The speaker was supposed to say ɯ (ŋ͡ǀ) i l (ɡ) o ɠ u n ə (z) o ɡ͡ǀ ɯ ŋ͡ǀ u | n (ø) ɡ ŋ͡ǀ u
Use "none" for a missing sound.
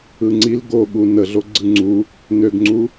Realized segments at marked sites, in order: ŋ͡ǀ, ɡ, ɮ, ø

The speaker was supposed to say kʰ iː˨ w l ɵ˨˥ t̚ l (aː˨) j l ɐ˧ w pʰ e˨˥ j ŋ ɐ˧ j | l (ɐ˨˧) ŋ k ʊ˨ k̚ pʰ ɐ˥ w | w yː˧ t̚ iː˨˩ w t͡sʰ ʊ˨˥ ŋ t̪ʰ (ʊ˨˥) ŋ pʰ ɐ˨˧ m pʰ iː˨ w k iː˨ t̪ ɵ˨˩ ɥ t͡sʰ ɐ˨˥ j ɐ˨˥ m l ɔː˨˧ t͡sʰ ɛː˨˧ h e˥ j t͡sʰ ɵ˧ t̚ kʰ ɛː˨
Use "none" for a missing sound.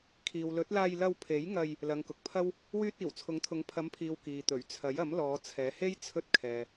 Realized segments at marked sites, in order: aː˧, ɐ˨˧, ʊ˨˥

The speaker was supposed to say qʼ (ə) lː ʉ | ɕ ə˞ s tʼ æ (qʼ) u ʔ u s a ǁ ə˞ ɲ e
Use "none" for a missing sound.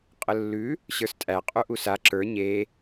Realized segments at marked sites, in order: ə, qʼ

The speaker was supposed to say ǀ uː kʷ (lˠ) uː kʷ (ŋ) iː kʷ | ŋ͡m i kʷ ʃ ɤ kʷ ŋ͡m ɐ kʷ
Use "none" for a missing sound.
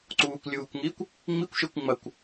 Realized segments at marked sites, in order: lʲ, ŋ

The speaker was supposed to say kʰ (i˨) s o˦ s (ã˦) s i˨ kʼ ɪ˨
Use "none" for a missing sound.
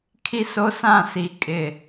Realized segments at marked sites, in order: i˦, ã˦˨

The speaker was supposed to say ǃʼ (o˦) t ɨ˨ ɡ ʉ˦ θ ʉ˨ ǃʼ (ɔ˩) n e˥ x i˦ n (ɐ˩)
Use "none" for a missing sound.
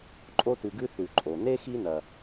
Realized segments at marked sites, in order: o˦, o˩, ɐ˩

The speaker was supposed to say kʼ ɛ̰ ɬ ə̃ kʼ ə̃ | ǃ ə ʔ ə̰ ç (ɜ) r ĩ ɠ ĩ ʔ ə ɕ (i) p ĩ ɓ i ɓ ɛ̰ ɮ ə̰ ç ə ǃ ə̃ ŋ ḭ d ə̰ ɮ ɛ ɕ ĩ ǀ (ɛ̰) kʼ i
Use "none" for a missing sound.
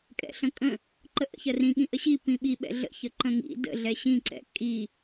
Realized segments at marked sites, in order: ɜ, i, ɛ̰

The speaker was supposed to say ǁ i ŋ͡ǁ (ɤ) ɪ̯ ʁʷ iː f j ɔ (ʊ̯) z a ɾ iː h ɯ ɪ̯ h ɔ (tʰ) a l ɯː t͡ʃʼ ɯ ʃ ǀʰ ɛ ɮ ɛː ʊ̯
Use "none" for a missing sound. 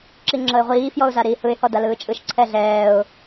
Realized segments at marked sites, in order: ɤ, ʊ̯, d

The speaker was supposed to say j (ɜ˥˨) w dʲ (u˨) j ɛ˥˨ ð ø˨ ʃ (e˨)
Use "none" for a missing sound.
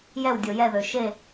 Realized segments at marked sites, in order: ɛ˥˨, o˨, e˥˨

